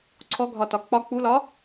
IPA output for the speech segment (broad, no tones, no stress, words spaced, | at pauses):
ǀʰɔɡʱɒ tɒk͡pɒ k͡pulɒ